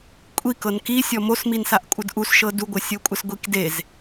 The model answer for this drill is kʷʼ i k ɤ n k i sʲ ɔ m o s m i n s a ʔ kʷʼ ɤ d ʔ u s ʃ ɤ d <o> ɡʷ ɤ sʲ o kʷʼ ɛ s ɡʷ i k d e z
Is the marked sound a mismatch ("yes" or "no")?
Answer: yes